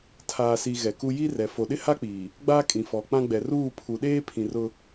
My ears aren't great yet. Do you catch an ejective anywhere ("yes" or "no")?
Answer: yes